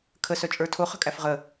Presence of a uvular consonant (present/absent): present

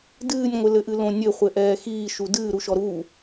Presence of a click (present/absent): absent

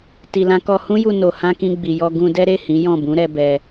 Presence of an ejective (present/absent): absent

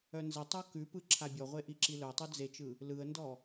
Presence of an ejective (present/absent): absent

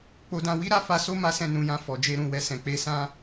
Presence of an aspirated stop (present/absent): absent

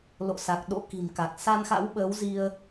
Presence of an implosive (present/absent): present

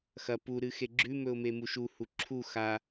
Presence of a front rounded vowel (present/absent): absent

